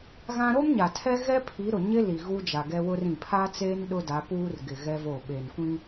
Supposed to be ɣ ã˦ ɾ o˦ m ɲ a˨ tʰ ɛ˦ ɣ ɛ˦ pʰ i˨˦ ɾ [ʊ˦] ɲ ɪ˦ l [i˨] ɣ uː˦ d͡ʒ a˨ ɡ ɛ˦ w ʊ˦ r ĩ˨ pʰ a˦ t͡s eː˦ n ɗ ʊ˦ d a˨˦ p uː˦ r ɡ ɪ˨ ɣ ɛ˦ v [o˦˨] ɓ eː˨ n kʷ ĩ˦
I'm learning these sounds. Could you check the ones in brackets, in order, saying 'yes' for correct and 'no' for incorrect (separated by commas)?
no, yes, yes